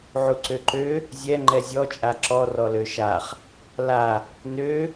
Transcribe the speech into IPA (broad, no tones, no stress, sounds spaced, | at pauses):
ʕ u ǀ ø ǃ ø | zʲ ɛ ŋ͡ǃ ɛ zʲ ɔ t͡ʃʼ a ǁ ɔ r ɔ l ø ʃ a χ | l a | n ø